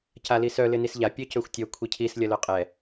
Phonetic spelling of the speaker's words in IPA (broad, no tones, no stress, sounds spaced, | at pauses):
c a l i s œ l ɪ n i s ʎ a pʲ œ c ø xʷ tʲ œ kʷʰ i cʰ i s lʲ ɐ l œ qʼ ɛ